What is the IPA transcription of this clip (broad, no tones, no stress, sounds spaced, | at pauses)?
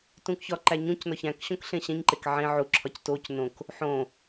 t ũ k ç ɒ ǃ æ ɲ ũ c n ɒ ç æ̃ k ɕ õ k ɬ ẽ ɕ ẽ ɲ ǃ e k ʕ ẽ ʕ u ǁʰ ɒ c t o c n õ k | ħ õ